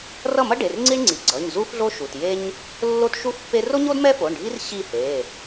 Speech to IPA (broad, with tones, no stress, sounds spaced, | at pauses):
r ʌ˥˨ m ʌ˥ ɖ e˩˧˩ r ŋ͡ǀ i˥ ɳ ŋ͡ǀ i˩˧˩ ɡ͡ǀ ʌ˩˧˩ ɲ z u˥ f ɮ o˥ ʃ u˩˧˩ t j e˥ ɲ | lː o˥ t ʃ u˥ f pː e˥ r o˥ ɲ o˥ d m ɛ˥ f o˩˧˩ ɳ ɖʱ i˥ r ɕ i˥˨ h e˩˧˩